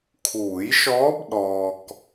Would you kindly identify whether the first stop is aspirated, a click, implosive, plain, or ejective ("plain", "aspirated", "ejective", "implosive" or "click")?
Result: aspirated